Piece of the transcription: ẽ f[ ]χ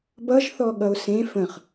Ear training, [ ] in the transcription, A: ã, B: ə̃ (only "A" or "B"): B